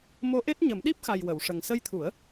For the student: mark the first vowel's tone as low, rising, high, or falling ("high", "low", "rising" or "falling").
rising